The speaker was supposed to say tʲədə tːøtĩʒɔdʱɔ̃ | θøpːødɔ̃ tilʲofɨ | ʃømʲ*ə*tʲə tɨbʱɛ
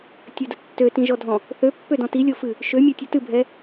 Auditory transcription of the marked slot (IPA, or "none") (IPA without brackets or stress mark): ø